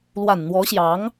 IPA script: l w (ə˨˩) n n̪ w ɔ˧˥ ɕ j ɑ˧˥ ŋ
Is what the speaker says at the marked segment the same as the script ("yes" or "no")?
no